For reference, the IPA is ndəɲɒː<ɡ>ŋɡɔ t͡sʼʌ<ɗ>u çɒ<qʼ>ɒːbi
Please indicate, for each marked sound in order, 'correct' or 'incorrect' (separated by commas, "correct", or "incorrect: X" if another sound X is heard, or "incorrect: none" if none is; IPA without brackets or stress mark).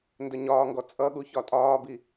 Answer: incorrect: none, incorrect: ɠ, incorrect: tʼ